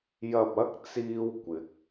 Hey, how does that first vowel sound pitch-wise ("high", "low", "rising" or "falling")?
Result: low